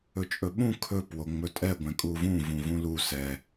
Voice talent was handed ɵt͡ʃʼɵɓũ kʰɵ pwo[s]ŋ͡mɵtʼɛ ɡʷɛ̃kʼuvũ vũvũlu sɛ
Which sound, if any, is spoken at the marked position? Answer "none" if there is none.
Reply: none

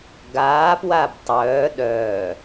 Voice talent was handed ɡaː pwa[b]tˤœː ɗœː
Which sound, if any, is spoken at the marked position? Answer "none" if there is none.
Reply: b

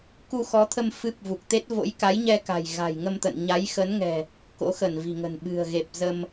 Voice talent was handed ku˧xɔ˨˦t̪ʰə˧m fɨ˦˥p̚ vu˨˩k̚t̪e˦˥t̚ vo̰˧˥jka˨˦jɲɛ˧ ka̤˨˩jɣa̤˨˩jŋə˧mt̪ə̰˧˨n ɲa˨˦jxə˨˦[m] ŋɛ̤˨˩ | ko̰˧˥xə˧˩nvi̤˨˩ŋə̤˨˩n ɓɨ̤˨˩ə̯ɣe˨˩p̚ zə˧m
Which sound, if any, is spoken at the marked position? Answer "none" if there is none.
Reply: n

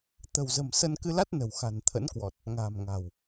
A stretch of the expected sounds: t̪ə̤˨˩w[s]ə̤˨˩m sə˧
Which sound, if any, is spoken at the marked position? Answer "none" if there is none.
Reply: z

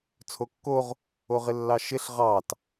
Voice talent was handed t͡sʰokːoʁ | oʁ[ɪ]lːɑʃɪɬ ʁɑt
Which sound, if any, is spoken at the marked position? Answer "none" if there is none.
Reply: ɪ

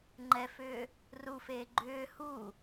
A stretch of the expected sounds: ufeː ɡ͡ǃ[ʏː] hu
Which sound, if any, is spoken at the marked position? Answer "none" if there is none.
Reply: ʏː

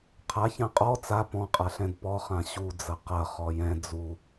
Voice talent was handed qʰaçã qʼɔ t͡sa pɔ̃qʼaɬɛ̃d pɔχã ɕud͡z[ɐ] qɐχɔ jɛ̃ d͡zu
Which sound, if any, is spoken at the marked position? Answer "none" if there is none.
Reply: ɐ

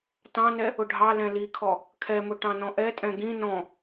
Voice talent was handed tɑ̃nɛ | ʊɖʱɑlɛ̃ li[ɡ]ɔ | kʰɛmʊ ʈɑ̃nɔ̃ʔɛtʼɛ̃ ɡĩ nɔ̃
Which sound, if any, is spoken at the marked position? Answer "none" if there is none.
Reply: kʰ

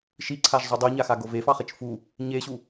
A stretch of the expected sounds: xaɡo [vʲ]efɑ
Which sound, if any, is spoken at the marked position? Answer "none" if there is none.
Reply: v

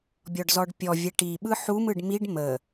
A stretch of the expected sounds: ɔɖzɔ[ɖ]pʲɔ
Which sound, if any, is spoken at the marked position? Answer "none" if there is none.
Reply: ɖ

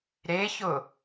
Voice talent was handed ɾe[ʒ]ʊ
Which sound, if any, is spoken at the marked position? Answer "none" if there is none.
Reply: ç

